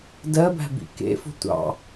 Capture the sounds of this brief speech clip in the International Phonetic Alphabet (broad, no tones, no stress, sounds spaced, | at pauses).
d ɜ b æ̤ b ḭ k ḛ f o̤ tʷ ɑ̰